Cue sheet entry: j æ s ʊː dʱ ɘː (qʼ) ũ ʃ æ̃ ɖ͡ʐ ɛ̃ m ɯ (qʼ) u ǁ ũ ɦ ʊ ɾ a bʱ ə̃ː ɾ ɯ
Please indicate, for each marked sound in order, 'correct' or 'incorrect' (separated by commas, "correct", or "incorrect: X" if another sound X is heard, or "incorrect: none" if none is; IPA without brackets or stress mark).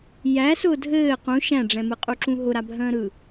incorrect: q, correct